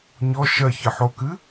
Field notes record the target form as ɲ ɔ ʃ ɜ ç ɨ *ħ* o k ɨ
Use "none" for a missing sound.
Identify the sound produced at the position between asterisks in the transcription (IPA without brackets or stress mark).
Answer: ħ